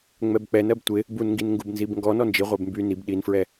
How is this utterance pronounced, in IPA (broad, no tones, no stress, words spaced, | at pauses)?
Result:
ŋ͡mɛbk͡pɛn ɜbtʷɪ | bunŋɡin ŋɡubnzibŋɡɔ nɔnd͡ʒi ʁʷɛbmby nib ɗinfɹɛ